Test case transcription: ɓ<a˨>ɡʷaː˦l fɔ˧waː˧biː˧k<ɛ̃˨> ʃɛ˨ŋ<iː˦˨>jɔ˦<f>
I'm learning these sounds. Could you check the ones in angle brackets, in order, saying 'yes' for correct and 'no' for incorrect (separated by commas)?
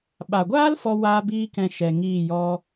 yes, yes, yes, no